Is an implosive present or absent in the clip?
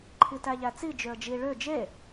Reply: absent